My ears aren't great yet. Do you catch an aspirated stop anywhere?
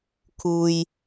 yes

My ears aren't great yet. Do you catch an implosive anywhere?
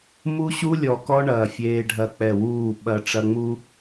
yes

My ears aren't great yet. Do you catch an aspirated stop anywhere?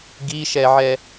no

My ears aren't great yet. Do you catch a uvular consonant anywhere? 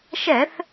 no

